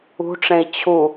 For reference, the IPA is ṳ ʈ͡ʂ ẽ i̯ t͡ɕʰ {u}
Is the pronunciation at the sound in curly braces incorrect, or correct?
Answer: correct